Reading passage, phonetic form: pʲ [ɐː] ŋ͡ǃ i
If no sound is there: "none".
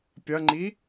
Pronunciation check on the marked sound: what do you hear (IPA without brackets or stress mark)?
ɐ